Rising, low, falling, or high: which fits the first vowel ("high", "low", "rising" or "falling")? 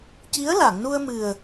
rising